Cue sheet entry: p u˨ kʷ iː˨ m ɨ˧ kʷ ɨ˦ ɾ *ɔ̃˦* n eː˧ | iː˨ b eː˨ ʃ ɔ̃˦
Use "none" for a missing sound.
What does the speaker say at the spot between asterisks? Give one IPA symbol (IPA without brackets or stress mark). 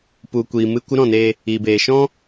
ɔ̃˦˨